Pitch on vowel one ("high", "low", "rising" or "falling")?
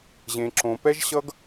low